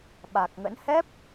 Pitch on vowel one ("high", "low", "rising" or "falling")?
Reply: low